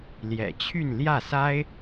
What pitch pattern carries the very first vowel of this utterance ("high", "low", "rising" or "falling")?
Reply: low